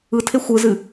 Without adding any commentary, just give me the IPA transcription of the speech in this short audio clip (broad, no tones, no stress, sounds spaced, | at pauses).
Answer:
ɯ tʰ e xʷ ɯ z ɨ